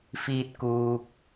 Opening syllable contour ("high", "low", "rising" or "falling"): high